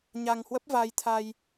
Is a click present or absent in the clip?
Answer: absent